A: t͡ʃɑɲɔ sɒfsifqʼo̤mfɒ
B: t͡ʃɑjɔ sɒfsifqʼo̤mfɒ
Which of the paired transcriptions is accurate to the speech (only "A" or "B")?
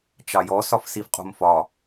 B